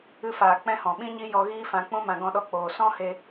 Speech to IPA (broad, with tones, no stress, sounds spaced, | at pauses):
ɨ˧ f aː˨ k͡p ɛ̃˦ h ɔ̃˨ ɓ ĩ˦ ɲ i˦ j ɔ˧ ɣ iː˦ f ã˧ k͡p ũ˦ m ã˧ ɡ ɔ̃˧ ɗ ɔ˧ k͡p oː˨ s ɔ̃˦ h e˧